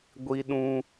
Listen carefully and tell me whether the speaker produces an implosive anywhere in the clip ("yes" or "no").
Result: yes